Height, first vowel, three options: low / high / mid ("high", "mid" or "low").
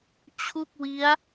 high